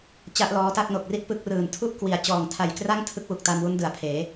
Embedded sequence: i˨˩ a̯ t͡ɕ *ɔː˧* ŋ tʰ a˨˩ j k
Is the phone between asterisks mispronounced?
yes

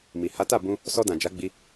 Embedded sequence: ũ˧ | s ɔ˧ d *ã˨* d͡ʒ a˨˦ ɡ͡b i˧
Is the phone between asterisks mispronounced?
no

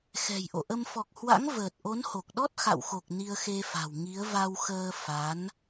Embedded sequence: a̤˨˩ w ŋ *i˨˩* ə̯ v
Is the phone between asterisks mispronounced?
yes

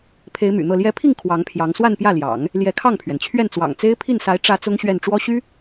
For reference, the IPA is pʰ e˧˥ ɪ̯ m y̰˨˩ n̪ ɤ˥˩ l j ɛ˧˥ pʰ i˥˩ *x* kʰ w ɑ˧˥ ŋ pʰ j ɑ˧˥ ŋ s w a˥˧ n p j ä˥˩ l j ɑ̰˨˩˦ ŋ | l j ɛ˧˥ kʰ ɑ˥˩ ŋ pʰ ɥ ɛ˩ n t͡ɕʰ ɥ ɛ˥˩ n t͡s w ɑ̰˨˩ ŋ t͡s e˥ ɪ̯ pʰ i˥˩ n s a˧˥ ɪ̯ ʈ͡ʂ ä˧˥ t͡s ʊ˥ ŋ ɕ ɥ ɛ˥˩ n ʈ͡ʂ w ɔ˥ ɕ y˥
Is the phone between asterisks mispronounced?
yes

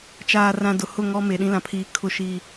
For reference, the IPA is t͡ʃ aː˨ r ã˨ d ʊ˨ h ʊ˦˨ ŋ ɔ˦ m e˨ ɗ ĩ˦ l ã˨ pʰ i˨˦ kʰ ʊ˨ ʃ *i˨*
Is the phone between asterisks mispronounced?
yes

